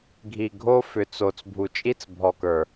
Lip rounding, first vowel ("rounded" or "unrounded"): unrounded